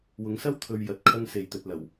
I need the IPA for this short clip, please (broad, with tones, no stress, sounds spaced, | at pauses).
w ʊ˨˧ ŋ s ɐ˥ w t̪ʰ ɵ˧ ɥ j ɐ˨˥ t̚ kʰ ɐ˥ ŋ s e˨ j t̪ ɵ˨ t̚ l ɐ˨˩ w